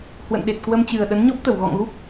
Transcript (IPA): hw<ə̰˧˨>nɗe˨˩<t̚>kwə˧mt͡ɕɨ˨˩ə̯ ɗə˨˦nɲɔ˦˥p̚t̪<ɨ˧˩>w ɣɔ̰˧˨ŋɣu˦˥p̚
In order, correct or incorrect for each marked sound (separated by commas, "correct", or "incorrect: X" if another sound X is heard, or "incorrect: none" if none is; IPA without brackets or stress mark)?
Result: correct, correct, incorrect: ə˧˩